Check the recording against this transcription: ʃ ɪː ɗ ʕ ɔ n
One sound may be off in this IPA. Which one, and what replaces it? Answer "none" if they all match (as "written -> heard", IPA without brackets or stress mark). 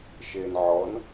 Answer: ɗ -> n